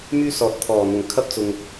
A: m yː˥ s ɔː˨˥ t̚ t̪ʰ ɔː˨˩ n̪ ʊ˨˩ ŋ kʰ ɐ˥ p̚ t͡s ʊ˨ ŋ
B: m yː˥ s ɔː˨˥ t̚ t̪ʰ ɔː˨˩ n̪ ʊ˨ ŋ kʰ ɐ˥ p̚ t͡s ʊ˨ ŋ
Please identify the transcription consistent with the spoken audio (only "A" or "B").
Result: A